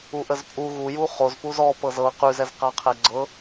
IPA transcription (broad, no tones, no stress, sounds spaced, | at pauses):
u ʔ ə z pʼ u ɣ u j u χ o z p u z ɔ p ɤ z ɤ q ʉ z ɛ z q a qʰ ɛ ɡ͡ǀ ɤ